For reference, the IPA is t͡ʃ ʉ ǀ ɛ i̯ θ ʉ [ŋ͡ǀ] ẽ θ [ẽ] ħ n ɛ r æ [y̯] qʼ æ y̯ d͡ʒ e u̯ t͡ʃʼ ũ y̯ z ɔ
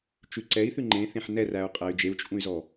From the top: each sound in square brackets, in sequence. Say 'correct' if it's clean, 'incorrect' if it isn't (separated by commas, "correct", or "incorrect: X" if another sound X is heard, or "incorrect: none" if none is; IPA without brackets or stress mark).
incorrect: ŋ͡ǃ, correct, incorrect: u̯